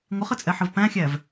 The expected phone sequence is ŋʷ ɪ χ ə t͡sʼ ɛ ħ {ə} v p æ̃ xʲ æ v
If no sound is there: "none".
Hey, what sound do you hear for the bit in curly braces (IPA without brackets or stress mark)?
ə